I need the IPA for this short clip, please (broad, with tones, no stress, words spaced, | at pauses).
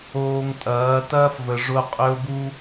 oː˨ŋtʼɐː˨˦ tɐː˦fvə˨ ʐʊ˦ qʼø˦o̯ɡu˦